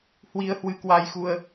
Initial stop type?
plain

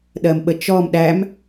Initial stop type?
implosive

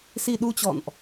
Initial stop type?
implosive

